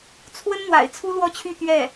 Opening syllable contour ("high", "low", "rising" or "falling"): high